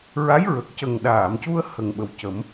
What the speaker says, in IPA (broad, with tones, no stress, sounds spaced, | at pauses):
ɹ a˧˥ j ɹ ə˨˩ k̚ c ə˨˩ ŋ ɗ aː˨˩˨ m c u˧ ə̯ h ə˨˩ ŋ ɓ ə˨˩ w c ə˨˩˦ m